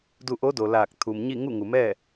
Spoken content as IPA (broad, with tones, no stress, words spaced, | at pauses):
du˧ʔo˧˥do˩ laː˧˩k̚t̪ʰu˩mɲi˥˨ ŋu˥˨ŋu˩mɛː˥˨